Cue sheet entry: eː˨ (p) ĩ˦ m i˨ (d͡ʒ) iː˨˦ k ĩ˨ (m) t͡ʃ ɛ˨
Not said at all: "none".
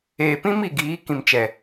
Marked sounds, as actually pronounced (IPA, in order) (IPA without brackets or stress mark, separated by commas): p, ɡ, m